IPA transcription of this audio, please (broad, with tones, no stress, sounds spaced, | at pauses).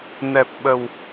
n ɛ˨˩ p̚ ɓ ə˨˩ w